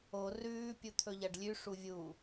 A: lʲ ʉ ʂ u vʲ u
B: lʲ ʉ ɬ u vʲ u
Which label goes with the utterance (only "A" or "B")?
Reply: A